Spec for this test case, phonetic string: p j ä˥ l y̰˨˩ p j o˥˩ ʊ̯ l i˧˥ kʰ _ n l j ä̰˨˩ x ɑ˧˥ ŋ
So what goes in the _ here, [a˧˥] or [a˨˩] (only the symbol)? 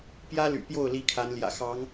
a˧˥